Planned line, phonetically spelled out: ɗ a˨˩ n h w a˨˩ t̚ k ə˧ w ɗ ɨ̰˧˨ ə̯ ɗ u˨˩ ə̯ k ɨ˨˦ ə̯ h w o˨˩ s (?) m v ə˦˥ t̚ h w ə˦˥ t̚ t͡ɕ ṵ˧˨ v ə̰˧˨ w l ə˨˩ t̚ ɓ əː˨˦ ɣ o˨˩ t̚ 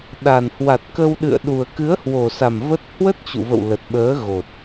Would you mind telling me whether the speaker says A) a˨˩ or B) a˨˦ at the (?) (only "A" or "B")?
A